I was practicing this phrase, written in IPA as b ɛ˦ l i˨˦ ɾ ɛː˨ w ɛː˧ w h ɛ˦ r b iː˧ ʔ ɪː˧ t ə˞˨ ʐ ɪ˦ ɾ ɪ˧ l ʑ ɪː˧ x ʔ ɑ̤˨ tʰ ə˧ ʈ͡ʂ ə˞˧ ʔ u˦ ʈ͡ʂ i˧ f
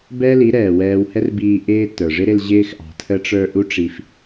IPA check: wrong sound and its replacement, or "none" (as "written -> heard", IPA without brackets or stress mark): none